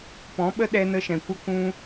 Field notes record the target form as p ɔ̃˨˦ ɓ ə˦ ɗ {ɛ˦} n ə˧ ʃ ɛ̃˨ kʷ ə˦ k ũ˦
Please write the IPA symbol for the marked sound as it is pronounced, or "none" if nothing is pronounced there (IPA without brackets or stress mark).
ɛ˦